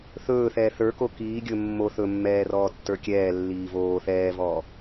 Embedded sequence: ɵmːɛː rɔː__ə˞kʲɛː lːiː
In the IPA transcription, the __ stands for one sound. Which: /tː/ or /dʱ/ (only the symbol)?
tː